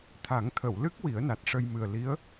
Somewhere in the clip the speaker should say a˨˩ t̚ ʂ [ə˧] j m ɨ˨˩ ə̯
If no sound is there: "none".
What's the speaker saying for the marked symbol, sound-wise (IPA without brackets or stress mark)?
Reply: ə˧